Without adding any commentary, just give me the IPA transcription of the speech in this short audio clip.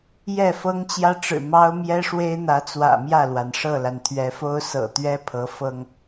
j ɛ˥˨ f ɤ˦ ŋ t͡ɕ j ä˦ ʈ͡ʂ ɻ̩˨˩ m ɑ˦ ʊ̯ m j ɛ˦ ʂ w e˦ ɪ̯ n̪ ä˨˦ t͡s w ä̰˨˩ m j ä˥˨ l w a˩ n ʂ ɤ˥˨ l a˩ n t̪ʰ ɥ ɛ˨˦ f o˦ ʊ̯ s ɤ̰˨˩ t̪ ɥ ɛ˦ pʰ ɤ˨˦ f ɤ˦ ŋ

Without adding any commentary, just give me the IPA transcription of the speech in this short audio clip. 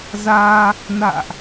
z aː˧ | n a̰ː˧˨ ʔ

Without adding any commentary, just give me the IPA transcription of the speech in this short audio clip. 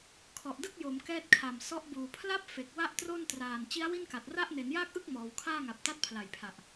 kʰ ɔ˨˩ ʔ d ɯ˥˩ k̚ j o˩˦ m k ɛː˥˩ t̚ kʰ a˨˩ m s ɔ˦˥ ʔ b uː˨˩ pʰ l a˥˩ p̚ f e˨˩ k̚ w a˥˩ ʔ t r o˥˩ n t r aː˨˩ n t͡ɕ i˦˥ a̯ w i˥˩ n k a˨˩ t̚ r a˥˩ ʔ n e˩˦ n j aː˥˩ k̚ ʔ ɯ˥˩ k̚ m ɔː˩˦ w kʰ aː˥˩ ŋ a˨˩ p̚ t a˥˩ t̚ pʰ l a˨˩ j pʰ a˨˩ ʔ

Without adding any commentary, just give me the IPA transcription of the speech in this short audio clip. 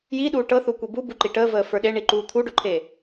j i ɗ uː ʈ ɤ θ u kʷ i b u b u ǃ i ʈ əː v əː f ə˞ ɗ e ɳ i ǃ uː t̪ʰ u ɖ o ǃʰ e

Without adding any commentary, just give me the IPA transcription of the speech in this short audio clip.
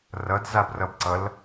r ʌ d z a b r ʌ b ǀ ʌ l

